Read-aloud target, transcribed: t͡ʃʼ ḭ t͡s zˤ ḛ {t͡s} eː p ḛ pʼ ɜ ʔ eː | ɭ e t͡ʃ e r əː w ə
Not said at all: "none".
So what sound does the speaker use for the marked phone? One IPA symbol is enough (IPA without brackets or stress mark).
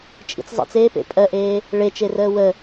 t͡s